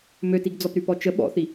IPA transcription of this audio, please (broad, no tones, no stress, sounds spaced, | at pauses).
m ø t i ɡ d͡z ɔ p ɾ y p ɔ t͡ʃ ə ɓ ɔ̰ θ i